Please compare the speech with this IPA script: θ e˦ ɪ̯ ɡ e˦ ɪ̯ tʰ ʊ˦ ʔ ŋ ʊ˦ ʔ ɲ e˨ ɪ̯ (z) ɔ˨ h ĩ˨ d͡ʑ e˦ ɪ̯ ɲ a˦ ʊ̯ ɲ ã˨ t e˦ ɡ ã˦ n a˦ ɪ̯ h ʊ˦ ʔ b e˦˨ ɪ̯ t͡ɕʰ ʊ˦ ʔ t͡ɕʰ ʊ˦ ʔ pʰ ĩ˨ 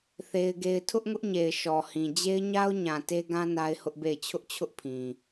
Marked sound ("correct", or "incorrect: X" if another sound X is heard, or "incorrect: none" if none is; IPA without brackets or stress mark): incorrect: ʃ